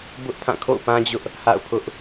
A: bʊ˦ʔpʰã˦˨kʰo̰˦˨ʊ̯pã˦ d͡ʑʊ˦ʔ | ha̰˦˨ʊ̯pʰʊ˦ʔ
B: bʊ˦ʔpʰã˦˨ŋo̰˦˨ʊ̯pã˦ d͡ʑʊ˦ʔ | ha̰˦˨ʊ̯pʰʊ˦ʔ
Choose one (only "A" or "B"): A